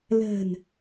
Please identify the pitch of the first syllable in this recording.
low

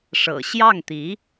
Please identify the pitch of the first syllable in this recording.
low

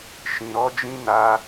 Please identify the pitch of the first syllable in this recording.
low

